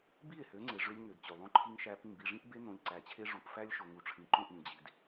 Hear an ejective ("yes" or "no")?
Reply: no